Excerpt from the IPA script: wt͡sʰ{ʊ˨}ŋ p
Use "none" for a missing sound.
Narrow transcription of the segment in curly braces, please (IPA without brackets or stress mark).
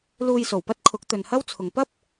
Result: ʊ˨